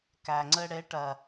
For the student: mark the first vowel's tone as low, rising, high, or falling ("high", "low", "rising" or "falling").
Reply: low